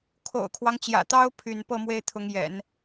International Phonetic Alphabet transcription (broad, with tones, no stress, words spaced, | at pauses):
kʰo̰˨˩ʊ̯kʰwɑ˦ŋt͡ɕjä̰˨˩t̪ɑ˥ʊ̯ pʰy˥˧n pɤ˥˧mwe˥˩ɪ̯t̪ʰʊ˧˥ŋjɛ̰˨˩˦n